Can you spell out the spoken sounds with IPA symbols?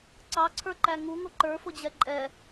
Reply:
ǀ ɑ ǀʰ ə˞ ǃ æ ŋ u ŋ ʊ ǃ ə˞ f ʊ d͡ʑ ɛ ǃʼ ɛ

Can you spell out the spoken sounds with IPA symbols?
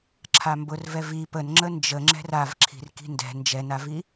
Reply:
ǁʰ a m b ʊ r v ɛ v i p ə n ŋ͡ǁ ə n d͡ʒ ə ŋ͡ǁ ɛ̤ r a v ǁʰ i̤ r k i̤ n d ɛ̤ n d͡ʒ ɛ n a v i

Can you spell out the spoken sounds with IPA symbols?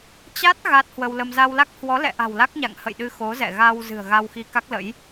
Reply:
t͡ɕ a˦˥ t̚ ɣ a˦˥ t̚ h w ə˧ w l ə˧ m z a˧ w l a˦˥ k̚ h w ɔ˨˦ l ɛ̰˧˨ ʔ a̤˨˩ w l a˦˥ k̚ ɲ a̰˧˨ ŋ h ə̰˧˨ j ɗ ɨ˧ x o˨˦ z ɛ̰˧˨ ɣ a˧ w z ɨ̤˨˩ ə̯ ɣ a˧ w x i˧ k a˦˥ k̚ l ə̰˧˥ j

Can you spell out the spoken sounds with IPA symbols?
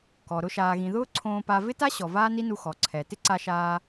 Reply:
k ɔ˩ ɾ ʊ˧ ʃ aː˩ ɣ ĩ˩ ð ʊː˥ ǀʰ õː˧ p a˧ v ɪ˥ t a˥ ɕ ɔ˩ v aː˥ n i˥ n u˧ x ɔ˩ ǀʰ ɛ˩ t ɪ˥ ǀ a˧ ʃ aː˧

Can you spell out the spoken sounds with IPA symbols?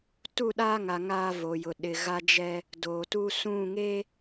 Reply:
t u˦˨ ɗ aː˦ ŋ a˨ ŋ aː˦ v o˨ j ʊ˨ ɗ ɪ˨ ɣ a˦ d͡ʒ ɛ˦ | d oː˨ t u˦ s ũ˦˨ ŋ e˦

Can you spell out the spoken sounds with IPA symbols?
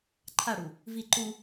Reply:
ǃʰ a ɽ u | v i ǃ u

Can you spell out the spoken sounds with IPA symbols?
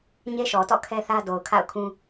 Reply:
ɲ e˦ ʃ ɔ˨ t ɔ̰˦˨ kʰ ɛ˦ θ ä˦ d o˨ ʊ̯ kʰ a̰˦˨ ʊ̯ kʰ ũ˦

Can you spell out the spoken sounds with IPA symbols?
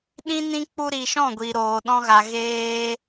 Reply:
ɗ ĩ˦ n ĩ˦ k͡p u˧ ɾ i˨ ʃ ɔ̃˦˨ ɡʷ iː˨ ɾ oː˨ ɗ ɔ̃˧ ɣ a˨ ɣ eː˧

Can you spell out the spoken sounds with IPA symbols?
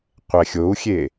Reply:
qʷ ɛ xʲ o u̯ xʲ e

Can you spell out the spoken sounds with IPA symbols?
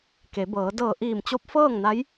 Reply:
k e˩˧ b ɤː˩˧ d ɤː˧˩ ʔ iː˧˩ m t͡ɕ o˧˥ p̚ f ɤː˥˨ ŋ n a˧˥ j

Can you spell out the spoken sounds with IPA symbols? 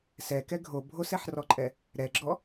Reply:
s ɛ k ɛ ɡʱ o bʱ o s ɛ ħ r ɔ ǃʼ ɛ | ɾ ɛ ɡ͡ǁ ɔ

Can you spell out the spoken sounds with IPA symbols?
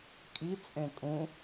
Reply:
kʼ i t͡sʼ ẽ kʼ ũ

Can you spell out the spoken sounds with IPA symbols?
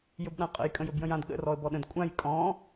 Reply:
j ɵ b ɗ ã qʼ ə̰ j kʼ ə̃ j ɵ b j ə̃ j ã d ɠ ə̰ r ɔ ə̯ b ɔ ɗ ə̃ d kʷʼ ã j kʼ ɔ̃

